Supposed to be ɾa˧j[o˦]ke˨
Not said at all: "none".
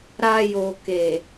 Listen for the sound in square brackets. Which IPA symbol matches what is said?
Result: o˨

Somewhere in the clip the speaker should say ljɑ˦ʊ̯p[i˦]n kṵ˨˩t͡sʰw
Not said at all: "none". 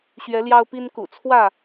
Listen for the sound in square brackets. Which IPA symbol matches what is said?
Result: i˦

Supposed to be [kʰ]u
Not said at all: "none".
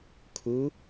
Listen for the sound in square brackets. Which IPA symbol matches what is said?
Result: kʰ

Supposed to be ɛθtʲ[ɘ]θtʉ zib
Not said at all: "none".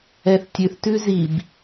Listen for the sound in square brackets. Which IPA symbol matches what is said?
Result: ʉ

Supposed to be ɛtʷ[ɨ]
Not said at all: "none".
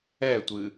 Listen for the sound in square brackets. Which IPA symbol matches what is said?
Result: ɨ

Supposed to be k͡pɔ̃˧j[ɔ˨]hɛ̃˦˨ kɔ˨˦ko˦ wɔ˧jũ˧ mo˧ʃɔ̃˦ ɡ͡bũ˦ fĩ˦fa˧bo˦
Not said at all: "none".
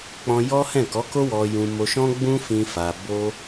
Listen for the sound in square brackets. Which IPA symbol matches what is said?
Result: ɔ˦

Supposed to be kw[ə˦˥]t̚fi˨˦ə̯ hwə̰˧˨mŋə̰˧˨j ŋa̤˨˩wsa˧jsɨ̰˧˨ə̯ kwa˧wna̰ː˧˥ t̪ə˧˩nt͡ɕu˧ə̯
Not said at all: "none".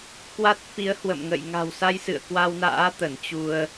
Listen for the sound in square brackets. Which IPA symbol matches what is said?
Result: a˦˥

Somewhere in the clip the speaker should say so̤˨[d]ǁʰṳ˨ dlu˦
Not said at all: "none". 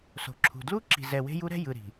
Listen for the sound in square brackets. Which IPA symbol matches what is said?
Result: none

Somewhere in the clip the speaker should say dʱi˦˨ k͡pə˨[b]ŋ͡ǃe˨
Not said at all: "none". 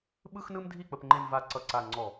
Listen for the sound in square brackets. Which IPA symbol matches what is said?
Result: p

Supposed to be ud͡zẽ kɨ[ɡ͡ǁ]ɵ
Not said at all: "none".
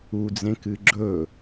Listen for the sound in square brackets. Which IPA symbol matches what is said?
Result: ɡ͡ǁ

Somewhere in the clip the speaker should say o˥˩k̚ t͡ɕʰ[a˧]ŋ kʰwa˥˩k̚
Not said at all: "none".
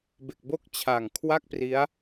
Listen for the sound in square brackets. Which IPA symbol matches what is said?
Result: a˨˩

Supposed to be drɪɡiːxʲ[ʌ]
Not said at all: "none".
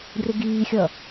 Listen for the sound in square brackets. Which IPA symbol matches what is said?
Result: ʌ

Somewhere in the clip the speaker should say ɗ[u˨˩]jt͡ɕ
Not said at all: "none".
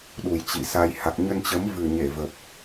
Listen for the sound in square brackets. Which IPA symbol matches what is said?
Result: u˨˩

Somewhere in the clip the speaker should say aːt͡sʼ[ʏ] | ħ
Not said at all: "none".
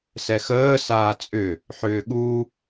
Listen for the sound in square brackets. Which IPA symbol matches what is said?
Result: ʏ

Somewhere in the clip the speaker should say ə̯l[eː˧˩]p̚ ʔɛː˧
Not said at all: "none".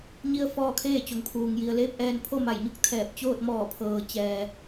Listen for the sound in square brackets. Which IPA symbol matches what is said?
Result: eː˧˥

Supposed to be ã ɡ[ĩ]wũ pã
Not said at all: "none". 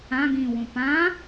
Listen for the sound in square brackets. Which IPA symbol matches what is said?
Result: ĩ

